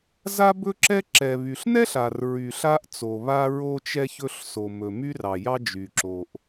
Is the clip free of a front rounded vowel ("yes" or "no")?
no